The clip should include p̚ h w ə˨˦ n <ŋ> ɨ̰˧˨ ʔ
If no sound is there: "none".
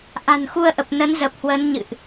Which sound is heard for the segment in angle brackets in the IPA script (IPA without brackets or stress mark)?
ɲ